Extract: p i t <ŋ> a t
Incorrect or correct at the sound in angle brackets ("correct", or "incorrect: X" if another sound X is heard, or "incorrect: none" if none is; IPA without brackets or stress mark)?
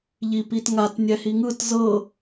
correct